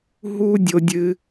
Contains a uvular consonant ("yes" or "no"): no